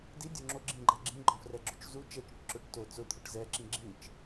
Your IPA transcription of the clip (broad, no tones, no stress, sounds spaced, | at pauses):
d i dʲ o ŋ͡ǁ o ɡ͡ǁ ĩ ɡ͡ǃ ɛ ɡ͡ǁ ĩ ɡ͡ǃ ɔ̃ f r ɛ ɡ͡ǁ o t͡ʃ z u t͡ʃ ɛ t͡ʃ ʊ ʈ ǁ ʊ ʈ t o t͡s ʊ t̪ʰ ʊ ʈ z ɛ ǁ ĩ ɡ͡ǁ ĩ t͡ʃ